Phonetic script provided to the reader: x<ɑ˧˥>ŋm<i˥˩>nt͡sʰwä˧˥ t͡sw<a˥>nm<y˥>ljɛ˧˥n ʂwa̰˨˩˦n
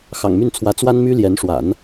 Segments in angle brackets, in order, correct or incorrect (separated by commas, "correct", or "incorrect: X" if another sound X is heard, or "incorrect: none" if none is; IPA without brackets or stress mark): incorrect: ɑ̰˨˩, incorrect: y˥˩, correct, correct